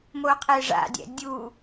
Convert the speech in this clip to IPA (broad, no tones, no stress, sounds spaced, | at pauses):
m o qʰ e ʐ a̰ dʲ ɛ̰ dʲ u